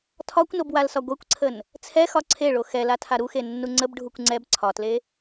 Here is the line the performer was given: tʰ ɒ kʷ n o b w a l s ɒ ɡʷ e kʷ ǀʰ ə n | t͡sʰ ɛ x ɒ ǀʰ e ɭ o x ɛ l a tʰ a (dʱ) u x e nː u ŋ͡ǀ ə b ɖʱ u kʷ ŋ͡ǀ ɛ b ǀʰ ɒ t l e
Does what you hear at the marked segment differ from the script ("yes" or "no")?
yes